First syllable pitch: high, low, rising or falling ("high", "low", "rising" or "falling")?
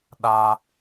high